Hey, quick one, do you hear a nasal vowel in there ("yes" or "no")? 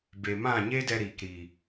yes